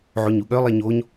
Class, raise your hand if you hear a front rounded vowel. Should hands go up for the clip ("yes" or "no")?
yes